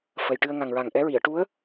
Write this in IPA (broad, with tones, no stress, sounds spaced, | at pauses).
f ə˨˩ j ʈ ɨ˧ ə̯ ŋ a˨˩ ŋ ɹ a˨˩ ŋ ʔ ɛ˧˥ ɹ i˨˩˨ ə̯ ʈ u˧˥ ə̯